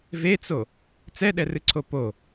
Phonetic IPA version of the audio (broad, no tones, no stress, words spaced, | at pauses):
vet͡so | t͡sɛɗɛrɨǀʰo po